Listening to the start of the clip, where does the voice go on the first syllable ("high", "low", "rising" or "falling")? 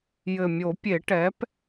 low